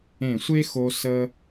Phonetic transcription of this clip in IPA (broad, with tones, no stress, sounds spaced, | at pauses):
ẽ˧˩ sʷ e˥ x o˧ s ə˧